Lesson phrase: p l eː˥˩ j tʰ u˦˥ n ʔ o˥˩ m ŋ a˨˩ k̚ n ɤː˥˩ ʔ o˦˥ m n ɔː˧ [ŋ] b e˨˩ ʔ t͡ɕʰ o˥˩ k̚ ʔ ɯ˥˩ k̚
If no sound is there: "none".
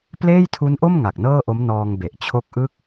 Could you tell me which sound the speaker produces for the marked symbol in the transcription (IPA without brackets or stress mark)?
ŋ